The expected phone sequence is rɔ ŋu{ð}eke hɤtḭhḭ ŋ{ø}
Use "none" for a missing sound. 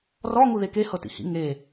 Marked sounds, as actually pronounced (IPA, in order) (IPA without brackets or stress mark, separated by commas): ð, e